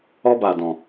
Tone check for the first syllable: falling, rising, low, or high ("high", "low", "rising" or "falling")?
high